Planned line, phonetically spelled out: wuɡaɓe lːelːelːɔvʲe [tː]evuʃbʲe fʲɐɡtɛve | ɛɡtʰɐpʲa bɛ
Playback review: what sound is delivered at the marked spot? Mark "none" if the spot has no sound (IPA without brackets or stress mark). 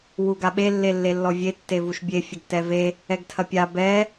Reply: tː